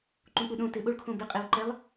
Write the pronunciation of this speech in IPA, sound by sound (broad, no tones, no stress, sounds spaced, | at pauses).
ǃ ũ k͡p u ɗ õ t ɪ ɓ o ɭ kʰ õ b ɪ qʼ e w ǃ ɛ lˠ